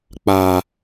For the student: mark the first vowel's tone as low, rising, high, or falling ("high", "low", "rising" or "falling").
high